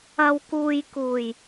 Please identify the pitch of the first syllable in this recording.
low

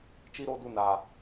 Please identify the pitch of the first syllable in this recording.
high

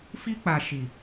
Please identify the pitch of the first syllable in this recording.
high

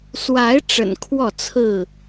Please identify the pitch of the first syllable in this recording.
rising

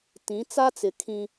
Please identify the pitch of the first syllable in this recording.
rising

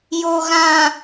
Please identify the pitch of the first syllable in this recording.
low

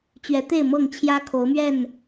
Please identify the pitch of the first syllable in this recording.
rising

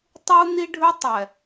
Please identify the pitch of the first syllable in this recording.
high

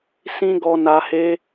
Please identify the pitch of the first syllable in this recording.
high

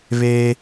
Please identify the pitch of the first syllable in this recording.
high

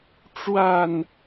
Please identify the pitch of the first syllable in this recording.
falling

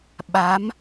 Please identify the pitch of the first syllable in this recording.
rising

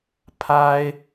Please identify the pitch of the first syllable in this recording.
high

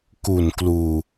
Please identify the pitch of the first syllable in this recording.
low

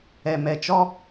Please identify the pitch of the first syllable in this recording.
low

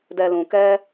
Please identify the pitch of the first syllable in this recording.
low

